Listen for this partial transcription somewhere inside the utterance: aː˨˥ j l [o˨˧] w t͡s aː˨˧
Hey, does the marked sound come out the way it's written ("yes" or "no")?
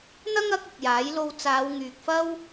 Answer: no